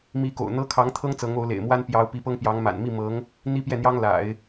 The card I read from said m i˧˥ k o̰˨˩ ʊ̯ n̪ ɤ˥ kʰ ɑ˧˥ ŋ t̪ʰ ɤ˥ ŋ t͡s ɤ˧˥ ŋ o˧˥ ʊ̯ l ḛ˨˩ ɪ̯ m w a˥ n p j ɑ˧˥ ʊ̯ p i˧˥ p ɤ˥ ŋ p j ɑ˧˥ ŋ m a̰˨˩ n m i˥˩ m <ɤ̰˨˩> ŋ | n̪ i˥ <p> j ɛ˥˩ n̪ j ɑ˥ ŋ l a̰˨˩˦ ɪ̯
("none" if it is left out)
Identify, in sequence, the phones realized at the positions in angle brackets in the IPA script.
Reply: ɤ˧˥, p

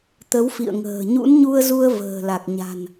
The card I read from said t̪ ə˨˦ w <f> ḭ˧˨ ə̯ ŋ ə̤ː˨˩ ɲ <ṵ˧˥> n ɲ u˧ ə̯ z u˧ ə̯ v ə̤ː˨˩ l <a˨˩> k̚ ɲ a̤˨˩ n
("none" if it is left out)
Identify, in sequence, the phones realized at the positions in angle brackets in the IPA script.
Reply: f, ṵ˧˥, a˨˩

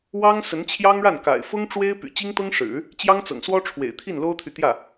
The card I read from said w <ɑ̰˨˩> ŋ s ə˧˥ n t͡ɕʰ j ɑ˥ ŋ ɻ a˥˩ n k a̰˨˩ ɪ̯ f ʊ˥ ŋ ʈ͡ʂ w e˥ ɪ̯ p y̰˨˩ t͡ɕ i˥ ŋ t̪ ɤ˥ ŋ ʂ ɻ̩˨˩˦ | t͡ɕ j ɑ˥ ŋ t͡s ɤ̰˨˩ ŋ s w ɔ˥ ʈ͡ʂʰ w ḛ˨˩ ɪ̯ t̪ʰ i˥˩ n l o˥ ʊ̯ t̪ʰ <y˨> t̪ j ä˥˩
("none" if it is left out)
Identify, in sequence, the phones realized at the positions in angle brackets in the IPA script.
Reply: ɑ˥, y˨

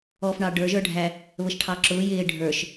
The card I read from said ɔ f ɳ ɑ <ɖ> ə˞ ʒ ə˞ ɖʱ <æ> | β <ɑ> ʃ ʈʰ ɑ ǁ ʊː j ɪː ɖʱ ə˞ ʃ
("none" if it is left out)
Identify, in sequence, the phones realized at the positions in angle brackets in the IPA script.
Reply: ɖ, æ, ə

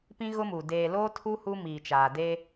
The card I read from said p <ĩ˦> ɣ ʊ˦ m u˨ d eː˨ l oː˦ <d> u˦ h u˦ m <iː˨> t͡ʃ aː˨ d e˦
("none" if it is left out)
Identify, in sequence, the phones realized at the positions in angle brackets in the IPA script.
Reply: ĩ˦, tʰ, iː˨

